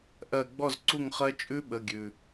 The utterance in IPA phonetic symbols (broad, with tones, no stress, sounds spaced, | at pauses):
ʔ ɜ˧˩ ɡ͡b ɔ˥˩ z ǀ u˥˩ ŋ χ ɜ˦˥ t͡ʃʼ ʉ˦˥ ɓ ə˩˧˩ ɡʲ ʉ˩